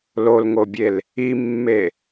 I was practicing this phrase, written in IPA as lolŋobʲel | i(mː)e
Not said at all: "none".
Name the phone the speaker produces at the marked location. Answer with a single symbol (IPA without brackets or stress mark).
mː